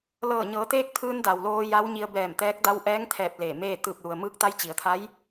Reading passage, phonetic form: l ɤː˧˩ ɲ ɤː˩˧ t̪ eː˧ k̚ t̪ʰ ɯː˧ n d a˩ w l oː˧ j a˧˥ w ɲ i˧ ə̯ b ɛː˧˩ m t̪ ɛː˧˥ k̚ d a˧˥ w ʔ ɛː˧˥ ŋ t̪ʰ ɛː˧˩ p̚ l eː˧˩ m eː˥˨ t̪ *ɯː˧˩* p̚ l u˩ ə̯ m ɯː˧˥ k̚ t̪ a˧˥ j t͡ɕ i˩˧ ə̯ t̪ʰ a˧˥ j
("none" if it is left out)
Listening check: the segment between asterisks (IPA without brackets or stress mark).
ɯː˧˩